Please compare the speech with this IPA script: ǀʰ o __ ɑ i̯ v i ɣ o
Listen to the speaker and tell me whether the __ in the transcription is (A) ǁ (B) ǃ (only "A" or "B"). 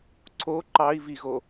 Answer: B